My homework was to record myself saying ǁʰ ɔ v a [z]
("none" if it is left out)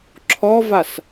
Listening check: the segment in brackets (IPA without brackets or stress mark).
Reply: s